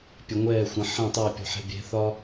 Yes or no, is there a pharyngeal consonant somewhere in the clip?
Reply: yes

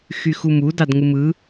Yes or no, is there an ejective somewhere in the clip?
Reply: no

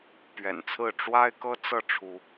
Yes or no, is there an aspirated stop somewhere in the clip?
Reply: yes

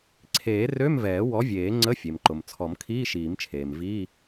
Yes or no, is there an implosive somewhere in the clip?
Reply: no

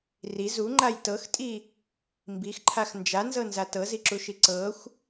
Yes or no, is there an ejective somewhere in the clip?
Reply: yes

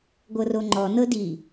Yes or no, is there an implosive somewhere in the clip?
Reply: no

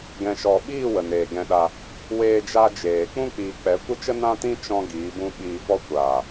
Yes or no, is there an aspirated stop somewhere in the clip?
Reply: no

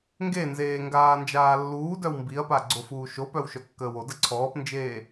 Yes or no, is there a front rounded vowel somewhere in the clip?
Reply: yes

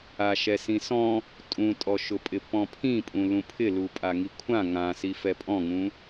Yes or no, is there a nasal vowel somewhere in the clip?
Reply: yes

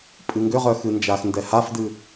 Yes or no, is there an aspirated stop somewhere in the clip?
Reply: no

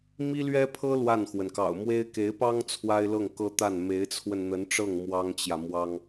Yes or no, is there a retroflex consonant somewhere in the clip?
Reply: yes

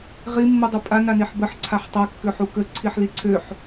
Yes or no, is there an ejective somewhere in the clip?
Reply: yes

